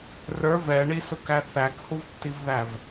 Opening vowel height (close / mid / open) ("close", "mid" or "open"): mid